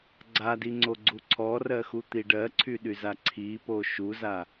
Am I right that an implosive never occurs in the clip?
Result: no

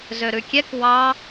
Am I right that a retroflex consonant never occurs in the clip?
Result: yes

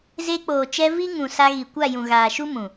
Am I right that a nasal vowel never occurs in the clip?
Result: no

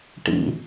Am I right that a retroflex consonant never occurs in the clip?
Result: no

